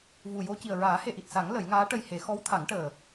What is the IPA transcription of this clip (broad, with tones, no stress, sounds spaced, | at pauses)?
v u˨˩ j o˧ c i˨˩ ə̯ ɹ aː˨˩˦ h e˨˩ ʔ i˨˩ t̚ s a˨˩˦ ŋ l ə˨˩˦ j ŋ aː˧˥ ʈ ə˧ j h e˨˩˦ x ɔ˧˥ w t̪ʰ a˨˩˦ ŋ ʈ əː˨˩